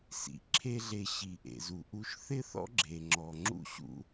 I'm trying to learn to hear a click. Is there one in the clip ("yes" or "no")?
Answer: yes